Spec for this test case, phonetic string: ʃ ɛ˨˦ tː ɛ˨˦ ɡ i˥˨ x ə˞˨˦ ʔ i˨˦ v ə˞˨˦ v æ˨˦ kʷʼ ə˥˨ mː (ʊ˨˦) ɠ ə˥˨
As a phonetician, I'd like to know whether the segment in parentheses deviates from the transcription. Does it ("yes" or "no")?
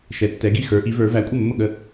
yes